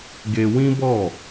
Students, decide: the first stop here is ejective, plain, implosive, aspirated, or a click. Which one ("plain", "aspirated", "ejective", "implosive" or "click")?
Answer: plain